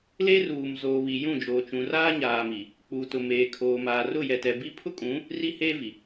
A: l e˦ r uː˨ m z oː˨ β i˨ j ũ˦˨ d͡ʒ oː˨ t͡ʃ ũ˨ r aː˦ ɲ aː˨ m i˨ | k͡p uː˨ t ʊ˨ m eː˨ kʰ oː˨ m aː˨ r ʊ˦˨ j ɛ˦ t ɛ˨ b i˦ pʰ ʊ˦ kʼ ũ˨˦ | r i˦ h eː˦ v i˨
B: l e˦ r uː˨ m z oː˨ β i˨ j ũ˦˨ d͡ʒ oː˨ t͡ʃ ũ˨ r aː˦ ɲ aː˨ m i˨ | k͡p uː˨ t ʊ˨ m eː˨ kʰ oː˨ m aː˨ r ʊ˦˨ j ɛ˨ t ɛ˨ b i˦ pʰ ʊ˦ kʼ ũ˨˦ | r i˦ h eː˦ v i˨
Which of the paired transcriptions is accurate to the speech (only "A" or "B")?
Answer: B